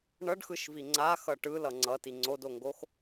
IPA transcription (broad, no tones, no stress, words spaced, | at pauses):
ɳʌɖxɯʃvi ŋ͡ǀaxʌ ʈɯlʌ ŋ͡ǀʌti ŋ͡ǀodoŋɡox